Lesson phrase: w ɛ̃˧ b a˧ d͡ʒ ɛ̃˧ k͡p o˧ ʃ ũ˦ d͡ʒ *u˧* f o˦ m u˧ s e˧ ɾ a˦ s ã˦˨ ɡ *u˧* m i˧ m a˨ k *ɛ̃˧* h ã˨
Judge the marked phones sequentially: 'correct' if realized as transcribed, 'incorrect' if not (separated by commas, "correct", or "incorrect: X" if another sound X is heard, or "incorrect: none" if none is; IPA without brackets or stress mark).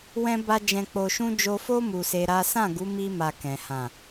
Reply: incorrect: o˧, incorrect: u˨˦, incorrect: ɛ̃˨